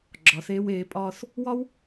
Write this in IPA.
ɡ͡ǁɒ˩˧θeː˧weː˩˧pʼɒː˧θ | wɒ˥w

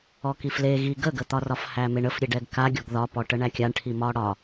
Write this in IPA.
ɔkifle ɣi ɡəɡət̪ɒrɒf hæmeɳəfɾʲe ɖɛɡkaɡʲɔɡ ðɒpɔʈə ɳækʲaɳʈʰi mɒɽɒ

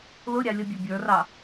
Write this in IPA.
lʊɾʲɑ lʲʌbʲubʲə˞rɑ

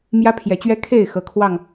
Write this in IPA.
mjä˦pʰjɛ˨˦t͡ɕɥɛ˦ kʰe˥˨ɪ̯ xɤ˦kʰwɑ˥˨ŋ

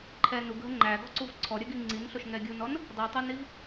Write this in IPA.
ǃʰɛ nuɡɦə ŋ͡ǃæ ɡɔǀuvǀʰɔ ɾʲəɡi ŋ͡ǀinɬoʃ ŋɛɡʲunɔn | dˤitˤoniv

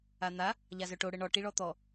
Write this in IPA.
an̪a | ʎazœʈo ɽəɳɔ ʈiɭɔt̪ɔ

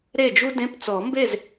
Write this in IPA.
ɾe˥˨d͡ʒu˥ dẽ˧˥˧pt͡sɔ˨˩˦mbe˥˨z

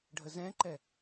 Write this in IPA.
ɖʱəzɛ̃ǃɛ

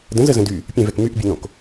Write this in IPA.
də̃zəzə̃ dy | pʲɛ̃vɛk myʔbʲən̪õk

